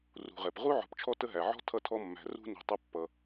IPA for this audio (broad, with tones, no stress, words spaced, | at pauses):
rṳ˨ʁɛ˩p ʁu˥ʕɔ̤˨pt͡ʃʰɔ˦ tə˦ɦæ˩ʕɔ̤˥ tʰʌ˦tʰɔ˦mːæ̤˨ rṳ˦ni̤˨ tˤə˦pːʌ˩